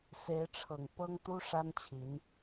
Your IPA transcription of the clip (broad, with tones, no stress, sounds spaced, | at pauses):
s e˧˥ ɪ̯ ʈ͡ʂʰ ɤ˨˩ ŋ p ɤ˥ ŋ t̪ u˥ ʂ a˥ n t͡ɕʰ i˧˥ n